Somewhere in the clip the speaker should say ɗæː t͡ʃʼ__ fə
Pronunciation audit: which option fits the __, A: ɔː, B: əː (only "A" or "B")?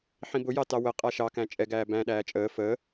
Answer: B